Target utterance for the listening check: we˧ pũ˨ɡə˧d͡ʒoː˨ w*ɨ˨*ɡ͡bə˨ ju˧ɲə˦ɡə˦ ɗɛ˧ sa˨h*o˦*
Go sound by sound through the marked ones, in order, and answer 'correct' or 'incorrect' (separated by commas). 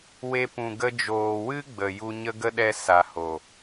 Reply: incorrect, incorrect